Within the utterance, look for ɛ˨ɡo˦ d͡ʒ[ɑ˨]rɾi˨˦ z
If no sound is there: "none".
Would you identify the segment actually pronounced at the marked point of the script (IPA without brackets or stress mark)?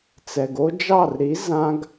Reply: ɑ˦˨